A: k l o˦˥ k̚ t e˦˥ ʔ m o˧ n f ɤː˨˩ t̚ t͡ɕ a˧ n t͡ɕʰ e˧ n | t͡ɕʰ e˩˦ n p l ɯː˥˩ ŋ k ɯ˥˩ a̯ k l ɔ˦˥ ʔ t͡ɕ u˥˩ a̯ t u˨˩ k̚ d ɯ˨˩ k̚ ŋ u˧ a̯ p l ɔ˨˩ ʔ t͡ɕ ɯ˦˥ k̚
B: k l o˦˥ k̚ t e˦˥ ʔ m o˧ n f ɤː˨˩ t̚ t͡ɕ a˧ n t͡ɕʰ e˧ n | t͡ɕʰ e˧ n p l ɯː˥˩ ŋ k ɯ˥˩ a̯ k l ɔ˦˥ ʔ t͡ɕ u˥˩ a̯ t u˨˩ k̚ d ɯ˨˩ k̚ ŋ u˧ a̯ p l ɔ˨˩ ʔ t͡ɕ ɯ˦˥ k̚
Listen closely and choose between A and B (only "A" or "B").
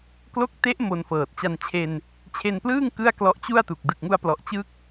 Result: B